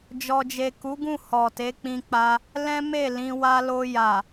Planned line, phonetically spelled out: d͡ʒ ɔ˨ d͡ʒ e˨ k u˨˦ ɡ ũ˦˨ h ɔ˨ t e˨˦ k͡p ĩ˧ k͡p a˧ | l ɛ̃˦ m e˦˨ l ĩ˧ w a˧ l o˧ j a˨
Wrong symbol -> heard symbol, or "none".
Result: none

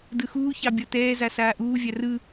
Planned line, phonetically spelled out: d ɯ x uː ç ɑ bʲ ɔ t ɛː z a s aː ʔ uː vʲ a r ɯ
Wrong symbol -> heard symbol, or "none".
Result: none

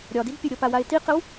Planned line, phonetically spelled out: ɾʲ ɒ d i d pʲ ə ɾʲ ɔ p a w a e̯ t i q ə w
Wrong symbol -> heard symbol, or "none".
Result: none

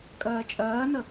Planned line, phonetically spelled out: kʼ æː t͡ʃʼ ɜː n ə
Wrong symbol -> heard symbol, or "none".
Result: æː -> ɜː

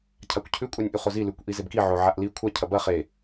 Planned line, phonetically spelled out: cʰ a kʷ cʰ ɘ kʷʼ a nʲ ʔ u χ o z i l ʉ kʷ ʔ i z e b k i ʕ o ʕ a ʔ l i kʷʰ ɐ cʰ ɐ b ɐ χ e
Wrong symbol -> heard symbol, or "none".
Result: ɘ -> ʉ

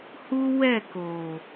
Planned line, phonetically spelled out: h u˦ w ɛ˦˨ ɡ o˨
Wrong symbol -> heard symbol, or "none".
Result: ɡ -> k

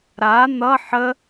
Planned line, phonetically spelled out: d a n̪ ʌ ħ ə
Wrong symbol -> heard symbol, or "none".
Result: d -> ɾ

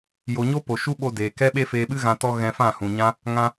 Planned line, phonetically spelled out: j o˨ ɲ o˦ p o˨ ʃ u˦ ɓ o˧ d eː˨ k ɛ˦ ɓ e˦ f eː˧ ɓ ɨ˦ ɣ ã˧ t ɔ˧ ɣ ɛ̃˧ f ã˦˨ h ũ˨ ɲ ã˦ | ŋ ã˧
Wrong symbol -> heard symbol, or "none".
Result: none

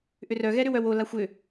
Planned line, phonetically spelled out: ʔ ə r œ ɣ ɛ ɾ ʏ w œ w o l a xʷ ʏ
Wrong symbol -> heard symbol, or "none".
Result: ə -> ʏ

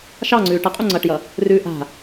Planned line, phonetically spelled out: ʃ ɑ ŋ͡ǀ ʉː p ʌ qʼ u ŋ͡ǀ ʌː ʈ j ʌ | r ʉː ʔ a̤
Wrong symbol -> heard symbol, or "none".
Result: p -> ʈ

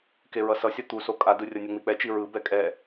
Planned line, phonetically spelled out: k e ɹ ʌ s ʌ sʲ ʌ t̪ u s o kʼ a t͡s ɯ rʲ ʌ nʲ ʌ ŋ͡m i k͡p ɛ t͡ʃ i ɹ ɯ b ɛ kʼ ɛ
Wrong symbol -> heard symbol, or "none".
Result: t͡s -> d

